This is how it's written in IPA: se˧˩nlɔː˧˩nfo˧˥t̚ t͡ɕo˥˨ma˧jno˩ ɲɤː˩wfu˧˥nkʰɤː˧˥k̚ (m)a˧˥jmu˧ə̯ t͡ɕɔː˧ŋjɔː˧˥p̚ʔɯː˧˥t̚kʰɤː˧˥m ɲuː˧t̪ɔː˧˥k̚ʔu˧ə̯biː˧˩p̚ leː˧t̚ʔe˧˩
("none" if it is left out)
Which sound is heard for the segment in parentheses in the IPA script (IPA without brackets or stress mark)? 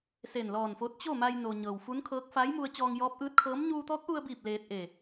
f